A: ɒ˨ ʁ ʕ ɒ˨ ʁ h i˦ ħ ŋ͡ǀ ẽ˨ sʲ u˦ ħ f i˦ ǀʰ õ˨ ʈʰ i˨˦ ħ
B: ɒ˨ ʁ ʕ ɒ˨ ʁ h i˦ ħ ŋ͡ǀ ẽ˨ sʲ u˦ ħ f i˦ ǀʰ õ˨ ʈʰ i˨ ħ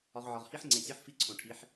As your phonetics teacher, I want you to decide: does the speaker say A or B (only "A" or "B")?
A